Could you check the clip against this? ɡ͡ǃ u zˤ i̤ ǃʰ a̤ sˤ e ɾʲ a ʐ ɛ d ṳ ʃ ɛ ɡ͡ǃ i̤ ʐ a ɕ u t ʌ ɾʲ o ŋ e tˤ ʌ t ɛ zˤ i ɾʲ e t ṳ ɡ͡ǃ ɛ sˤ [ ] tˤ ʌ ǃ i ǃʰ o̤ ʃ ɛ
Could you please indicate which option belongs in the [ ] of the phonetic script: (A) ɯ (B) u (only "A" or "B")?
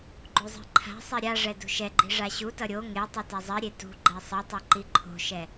A